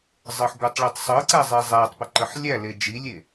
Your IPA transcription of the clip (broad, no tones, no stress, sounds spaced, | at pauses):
zˤ ɤ ħ ɡʷ ə tˤ ɭ i tˤ sˤ ɤ ǀ æ zˤ i zˤ æ tˤ p ə ǃ ə ħ lʲ æ l e d͡ʒ i lʲ e